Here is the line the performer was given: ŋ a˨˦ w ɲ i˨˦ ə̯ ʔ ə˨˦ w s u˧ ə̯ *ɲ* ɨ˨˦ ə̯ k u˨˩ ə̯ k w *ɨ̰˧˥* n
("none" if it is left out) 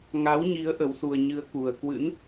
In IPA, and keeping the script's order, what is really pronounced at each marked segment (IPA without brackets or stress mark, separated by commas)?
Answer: ɲ, ɨ̰˧˥